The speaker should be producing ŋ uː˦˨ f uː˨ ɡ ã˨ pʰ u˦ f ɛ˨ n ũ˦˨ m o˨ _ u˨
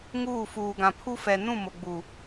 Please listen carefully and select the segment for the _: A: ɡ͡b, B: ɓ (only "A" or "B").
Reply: A